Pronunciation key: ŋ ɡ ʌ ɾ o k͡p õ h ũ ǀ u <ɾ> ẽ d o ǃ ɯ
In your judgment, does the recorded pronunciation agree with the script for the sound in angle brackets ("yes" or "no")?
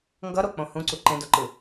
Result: no